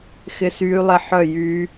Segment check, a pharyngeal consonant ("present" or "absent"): present